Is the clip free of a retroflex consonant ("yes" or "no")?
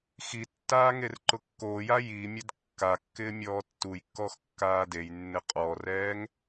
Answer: yes